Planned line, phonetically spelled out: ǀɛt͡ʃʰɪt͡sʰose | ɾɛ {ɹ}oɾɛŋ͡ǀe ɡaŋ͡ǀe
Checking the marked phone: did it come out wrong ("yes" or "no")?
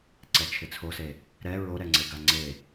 no